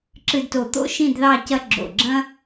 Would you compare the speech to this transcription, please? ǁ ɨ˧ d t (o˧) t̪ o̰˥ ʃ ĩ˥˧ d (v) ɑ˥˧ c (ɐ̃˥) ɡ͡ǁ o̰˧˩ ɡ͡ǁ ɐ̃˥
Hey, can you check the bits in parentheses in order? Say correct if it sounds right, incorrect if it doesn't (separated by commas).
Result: incorrect, incorrect, incorrect